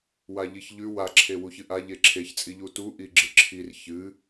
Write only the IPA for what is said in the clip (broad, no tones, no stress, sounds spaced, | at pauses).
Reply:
w a ʎ i ç ʎ ʉ w a ǁʰ e w u ç ɨ ʔ a ʎ e ǁʰ e ç t͡sʼ i ʎ u t u ʔ i ɡ͡ǁ ɨ ǁʰ i r ç ɨ